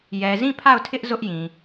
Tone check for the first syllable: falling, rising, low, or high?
low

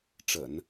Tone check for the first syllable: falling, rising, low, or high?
low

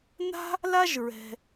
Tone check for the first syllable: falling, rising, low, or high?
high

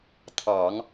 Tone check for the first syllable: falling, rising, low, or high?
low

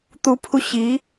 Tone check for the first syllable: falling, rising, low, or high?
rising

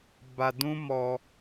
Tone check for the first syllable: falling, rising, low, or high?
low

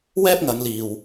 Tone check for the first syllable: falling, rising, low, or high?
high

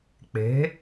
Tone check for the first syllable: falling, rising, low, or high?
rising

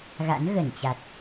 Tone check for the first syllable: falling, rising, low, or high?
rising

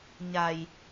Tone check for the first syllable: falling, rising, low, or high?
low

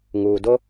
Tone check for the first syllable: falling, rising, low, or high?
low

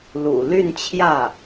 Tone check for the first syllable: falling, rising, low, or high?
low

